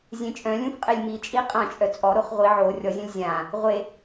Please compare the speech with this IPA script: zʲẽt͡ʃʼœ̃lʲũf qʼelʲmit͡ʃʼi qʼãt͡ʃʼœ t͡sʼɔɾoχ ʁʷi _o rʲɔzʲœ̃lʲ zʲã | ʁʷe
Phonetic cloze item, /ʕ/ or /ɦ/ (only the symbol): ʕ